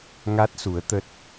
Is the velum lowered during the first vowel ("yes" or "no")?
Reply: no